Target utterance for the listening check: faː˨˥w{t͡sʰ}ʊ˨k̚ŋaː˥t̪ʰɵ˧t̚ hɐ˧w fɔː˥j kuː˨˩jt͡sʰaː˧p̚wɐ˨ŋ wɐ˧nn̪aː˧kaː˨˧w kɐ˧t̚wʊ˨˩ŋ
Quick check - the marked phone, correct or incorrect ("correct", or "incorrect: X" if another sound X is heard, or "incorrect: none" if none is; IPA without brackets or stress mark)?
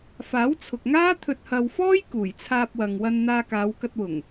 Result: correct